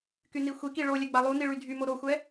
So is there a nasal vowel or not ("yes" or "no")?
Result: no